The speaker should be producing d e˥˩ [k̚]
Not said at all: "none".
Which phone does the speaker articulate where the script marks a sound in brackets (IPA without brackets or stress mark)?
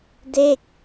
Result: k̚